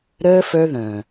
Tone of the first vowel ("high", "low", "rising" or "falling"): high